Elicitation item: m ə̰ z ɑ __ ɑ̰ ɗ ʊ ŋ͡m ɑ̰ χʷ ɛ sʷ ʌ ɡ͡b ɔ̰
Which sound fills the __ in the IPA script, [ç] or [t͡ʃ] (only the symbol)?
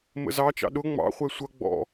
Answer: t͡ʃ